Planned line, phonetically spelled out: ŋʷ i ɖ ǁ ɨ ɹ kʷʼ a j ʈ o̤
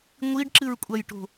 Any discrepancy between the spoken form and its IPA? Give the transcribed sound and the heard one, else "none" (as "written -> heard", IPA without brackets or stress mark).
none